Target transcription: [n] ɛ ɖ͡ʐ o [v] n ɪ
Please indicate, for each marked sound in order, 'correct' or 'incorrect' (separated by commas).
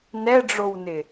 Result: correct, incorrect